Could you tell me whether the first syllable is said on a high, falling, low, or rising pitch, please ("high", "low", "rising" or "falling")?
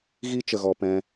high